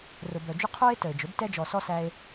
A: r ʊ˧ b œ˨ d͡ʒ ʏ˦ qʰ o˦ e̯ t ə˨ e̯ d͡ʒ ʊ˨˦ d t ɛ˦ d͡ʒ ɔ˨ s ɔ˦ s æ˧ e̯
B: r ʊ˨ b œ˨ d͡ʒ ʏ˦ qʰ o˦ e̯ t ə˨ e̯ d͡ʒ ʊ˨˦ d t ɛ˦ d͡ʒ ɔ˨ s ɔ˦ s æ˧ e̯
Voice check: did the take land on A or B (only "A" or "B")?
B